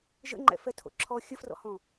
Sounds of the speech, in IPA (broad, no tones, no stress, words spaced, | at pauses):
ʒə̰ŋ͡ǃɛ̰fɛtʰo̰ ǁʰɔ xʲəfrɔ̰hɔ̃